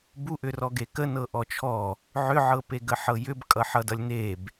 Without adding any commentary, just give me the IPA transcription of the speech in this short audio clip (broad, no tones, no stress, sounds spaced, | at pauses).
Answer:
b u ʔ ʏ r ɔ ɡ e k ə n ɤ ʔ ɔ t͡ʃʰ ɔ | ʕ ʏ ʕ ɤ p e ɡ ə ħ ɤ j ʏ b kʼ ʌ ħ ʌ d ʌ lʲ n e b